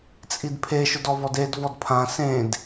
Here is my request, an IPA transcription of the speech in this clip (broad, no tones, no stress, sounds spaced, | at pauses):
t͡sʼ i d pʰ e ʃ ʊ d ɔ v ɔ d e d v ɔ d pʰ ã s ẽ d